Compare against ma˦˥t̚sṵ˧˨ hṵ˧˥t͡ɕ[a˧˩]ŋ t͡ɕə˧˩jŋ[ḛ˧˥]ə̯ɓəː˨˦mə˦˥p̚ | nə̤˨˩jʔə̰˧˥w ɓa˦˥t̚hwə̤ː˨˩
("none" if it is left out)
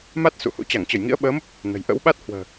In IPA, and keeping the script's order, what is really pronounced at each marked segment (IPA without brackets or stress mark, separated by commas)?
a˧˩, ḭ˧˥